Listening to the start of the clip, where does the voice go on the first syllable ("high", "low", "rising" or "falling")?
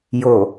low